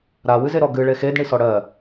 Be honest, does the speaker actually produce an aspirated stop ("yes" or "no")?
no